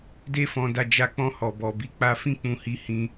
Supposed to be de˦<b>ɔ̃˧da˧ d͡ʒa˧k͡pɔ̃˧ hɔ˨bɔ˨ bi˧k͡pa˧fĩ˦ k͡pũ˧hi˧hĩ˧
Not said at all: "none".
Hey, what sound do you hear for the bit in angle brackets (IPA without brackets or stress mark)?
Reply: f